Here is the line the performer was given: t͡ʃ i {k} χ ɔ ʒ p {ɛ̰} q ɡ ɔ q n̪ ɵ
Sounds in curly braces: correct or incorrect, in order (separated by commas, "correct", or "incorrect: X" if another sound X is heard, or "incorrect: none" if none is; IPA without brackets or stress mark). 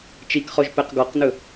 correct, incorrect: ɛ